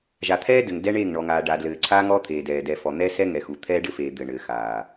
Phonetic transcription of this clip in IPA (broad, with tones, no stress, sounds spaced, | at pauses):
ʒ a˨ t̪ʰ ɛː˦ d ɘ˨ ŋ d ɛ˦ ɳ eː˦˨ ŋ ɳ ɔ˨ ŋ aː˨ ɖ a˨ d l ɘː˨ ǀʰ aː˦ ŋ ɔː˦ t̪ʰ eː˨ d ɛː˨ d ɛ˨ f ɔ˨ n̪ ɛ˦ s ɛ˦ ŋ ɛ˨ x u˨ t̪ʰ ɛː˦ ɖ ɘ˦ f eː˨ d̪ ɘ˨ ɳ ɘː˨ x aː˨